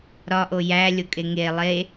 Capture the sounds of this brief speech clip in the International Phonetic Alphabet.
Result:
ɾ ɒ ʔ o j æ lʲ o kʼ e ŋ e lˠ e

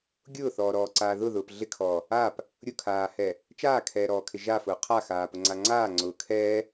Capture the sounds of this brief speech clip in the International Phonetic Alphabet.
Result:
ɡʲ ʊː θ ɔː ɾ ɔː ǀ aː ð ʊ ð ʊː p ɮ ɪ kʰ ɔː | aː p | ɾʲ ʊ kʰ aː h ɛː | t͡ʃ aː kʰ ɛː ɾ ɔː kʰ ɪ ʒ aː f ʊː qʰ a x aː p ʊ ŋ͡ǀ a ŋ͡ǀ aː ŋ͡ǀ ʊː kʰ ɛː

